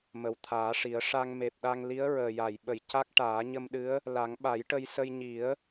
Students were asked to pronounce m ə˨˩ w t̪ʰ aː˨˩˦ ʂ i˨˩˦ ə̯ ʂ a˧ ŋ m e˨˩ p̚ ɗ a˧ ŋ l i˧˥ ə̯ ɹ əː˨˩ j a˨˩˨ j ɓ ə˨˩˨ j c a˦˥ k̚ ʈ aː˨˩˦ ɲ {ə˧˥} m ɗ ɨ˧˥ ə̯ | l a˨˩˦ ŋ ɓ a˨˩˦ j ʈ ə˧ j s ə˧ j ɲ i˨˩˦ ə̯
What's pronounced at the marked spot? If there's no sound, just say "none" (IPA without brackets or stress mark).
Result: ə˧